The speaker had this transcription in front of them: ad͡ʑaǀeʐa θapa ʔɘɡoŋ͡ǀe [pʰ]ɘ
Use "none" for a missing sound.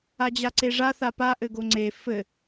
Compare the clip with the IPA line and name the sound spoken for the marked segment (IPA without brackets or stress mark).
f